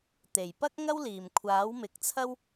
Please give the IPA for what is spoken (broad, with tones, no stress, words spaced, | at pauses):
t̪e˨˩j pɐ˥k̚ŋɐ˥wliː˨˩mkʷʰaː˨˥w mɪ˨˥k̚t͡sʰɐ˥w